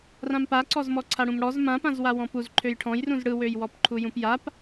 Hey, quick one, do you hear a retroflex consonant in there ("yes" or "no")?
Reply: yes